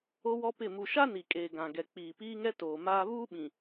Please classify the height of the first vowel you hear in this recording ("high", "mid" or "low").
mid